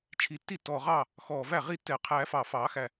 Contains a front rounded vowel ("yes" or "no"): no